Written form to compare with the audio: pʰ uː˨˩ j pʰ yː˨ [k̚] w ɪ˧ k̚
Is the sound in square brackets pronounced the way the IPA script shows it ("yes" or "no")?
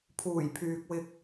yes